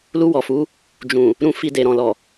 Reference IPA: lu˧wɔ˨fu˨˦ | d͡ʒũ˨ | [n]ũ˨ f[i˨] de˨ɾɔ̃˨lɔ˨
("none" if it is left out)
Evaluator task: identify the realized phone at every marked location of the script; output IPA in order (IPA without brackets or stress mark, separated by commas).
ɾ, i˨